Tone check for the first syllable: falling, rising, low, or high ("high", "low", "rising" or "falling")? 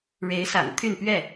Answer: rising